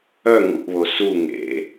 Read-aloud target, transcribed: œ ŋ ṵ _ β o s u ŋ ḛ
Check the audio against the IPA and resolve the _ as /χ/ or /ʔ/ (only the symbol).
ʔ